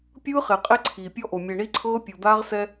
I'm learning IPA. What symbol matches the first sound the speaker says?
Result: pʲ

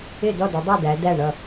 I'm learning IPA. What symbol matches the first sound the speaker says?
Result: ɪ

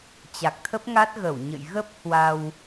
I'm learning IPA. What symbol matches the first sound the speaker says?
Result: t͡ɕ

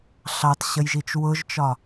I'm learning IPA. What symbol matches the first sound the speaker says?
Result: ɬ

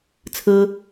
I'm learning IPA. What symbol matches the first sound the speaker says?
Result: t͡sʰ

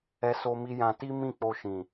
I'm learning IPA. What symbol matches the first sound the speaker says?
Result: ɛ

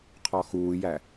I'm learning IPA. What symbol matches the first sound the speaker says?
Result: qʰ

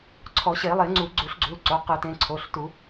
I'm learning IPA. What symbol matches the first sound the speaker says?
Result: ǀʰ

